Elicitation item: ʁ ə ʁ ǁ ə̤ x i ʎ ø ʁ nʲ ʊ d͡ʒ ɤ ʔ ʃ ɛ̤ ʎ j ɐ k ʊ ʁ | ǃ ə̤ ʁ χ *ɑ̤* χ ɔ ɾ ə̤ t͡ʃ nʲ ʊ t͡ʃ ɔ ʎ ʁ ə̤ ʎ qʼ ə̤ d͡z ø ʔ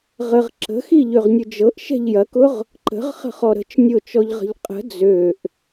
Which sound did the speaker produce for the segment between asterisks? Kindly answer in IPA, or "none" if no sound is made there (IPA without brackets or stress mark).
ə̤